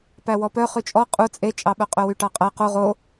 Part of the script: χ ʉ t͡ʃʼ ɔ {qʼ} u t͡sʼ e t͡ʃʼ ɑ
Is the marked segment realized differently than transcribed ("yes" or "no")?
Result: no